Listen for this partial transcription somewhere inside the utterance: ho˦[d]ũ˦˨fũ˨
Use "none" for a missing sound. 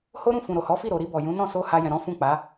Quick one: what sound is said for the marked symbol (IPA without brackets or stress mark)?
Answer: ɾ